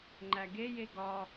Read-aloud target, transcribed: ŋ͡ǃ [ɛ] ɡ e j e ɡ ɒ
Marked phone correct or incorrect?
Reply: incorrect